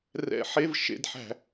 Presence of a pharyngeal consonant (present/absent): present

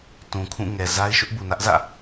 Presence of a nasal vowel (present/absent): present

